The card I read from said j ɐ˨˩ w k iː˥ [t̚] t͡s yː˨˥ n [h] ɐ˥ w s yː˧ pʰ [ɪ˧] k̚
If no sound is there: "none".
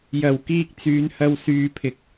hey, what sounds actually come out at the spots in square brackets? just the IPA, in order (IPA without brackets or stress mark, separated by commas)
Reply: k̚, h, ɪ˨